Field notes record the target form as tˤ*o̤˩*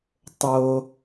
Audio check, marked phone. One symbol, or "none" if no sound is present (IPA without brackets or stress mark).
o˩